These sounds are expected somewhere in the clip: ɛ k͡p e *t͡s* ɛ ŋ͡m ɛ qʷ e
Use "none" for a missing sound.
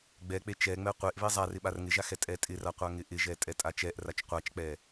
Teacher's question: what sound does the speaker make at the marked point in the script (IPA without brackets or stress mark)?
t͡ʃ